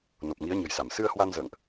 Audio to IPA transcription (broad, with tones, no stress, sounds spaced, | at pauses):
n o˨˩ p̚ ŋ i˨˦ ə̯ ɲ ə̤˨˩ j s a˧˩ m s ɨ˧ ə̯ h w a˧ n z ə̰ː˧˨ ŋ ʔ